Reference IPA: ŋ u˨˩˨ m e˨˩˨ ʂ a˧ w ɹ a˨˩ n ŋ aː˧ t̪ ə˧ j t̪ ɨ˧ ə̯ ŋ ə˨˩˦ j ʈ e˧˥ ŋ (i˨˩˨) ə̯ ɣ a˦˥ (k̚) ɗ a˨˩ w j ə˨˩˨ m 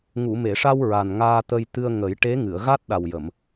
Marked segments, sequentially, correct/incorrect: incorrect: ɨ˨˩˨, incorrect: t̚

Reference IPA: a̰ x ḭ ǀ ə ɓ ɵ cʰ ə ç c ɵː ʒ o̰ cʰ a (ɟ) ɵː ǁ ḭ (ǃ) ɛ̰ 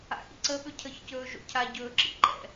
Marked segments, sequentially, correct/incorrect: correct, correct

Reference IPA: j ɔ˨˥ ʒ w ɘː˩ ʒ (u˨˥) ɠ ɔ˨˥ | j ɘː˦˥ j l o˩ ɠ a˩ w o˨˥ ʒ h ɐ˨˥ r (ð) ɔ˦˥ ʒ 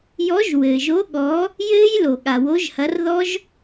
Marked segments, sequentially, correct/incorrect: incorrect: o˨˥, correct

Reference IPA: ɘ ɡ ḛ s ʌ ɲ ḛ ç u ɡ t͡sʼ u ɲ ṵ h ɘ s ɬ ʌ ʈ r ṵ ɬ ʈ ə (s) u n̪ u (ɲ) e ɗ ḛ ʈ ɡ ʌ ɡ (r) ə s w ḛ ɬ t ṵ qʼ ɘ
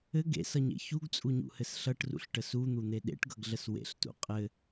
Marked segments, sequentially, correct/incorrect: correct, incorrect: n̪, incorrect: ɮ

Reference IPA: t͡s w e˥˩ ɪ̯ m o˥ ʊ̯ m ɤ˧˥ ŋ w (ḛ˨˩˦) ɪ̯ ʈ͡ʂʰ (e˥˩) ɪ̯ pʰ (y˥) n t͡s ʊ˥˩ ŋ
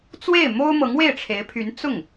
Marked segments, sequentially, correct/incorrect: incorrect: e˥˩, incorrect: e˧˥, incorrect: y˧˥

